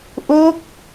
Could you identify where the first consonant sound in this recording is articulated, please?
glottal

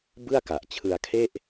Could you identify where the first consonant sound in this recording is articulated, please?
labial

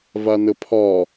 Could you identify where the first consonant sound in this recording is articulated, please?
labial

